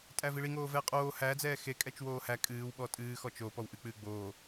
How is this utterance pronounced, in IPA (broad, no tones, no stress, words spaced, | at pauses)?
tʼæviɭi ŋoːvɛːqʼoː hæ d͡zɛːxekʼɛt͡ʃ woːhæ kʼɨːw ɓɔtʼɨːxɔ t͡ʃo pɔwʔɨk͡pɨː ɡ͡boː